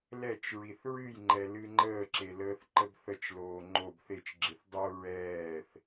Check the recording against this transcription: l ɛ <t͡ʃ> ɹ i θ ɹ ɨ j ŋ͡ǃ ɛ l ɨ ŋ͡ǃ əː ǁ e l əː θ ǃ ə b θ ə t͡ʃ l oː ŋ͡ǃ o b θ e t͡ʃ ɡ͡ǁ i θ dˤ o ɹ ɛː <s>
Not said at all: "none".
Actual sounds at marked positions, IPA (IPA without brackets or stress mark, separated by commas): t͡ʃ, θ